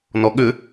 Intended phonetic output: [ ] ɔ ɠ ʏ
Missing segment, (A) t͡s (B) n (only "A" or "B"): B